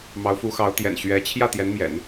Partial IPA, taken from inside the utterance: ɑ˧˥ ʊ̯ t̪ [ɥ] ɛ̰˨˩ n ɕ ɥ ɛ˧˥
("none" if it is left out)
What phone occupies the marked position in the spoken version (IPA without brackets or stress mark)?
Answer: j